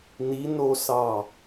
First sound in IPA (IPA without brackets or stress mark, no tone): n